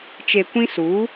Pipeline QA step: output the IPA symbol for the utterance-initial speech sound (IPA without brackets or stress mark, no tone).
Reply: t͡ʃ